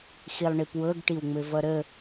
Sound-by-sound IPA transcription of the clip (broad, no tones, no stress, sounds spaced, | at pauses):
x i lˠ ɳ i p w ɤ ɡ ʈ i w ŋ͡m ɘ v ʌ ɾ ə